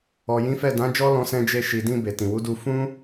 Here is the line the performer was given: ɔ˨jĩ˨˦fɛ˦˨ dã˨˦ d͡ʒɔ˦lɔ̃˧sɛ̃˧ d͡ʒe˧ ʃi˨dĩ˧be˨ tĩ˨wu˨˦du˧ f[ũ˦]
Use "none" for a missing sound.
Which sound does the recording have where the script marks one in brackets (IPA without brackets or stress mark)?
ũ˦